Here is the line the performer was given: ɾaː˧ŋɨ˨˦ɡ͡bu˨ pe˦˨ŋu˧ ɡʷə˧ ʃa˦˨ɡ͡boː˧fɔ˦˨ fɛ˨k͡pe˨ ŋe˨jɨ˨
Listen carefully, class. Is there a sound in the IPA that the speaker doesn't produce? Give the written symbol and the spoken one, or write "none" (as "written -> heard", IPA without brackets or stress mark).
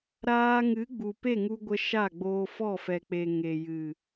none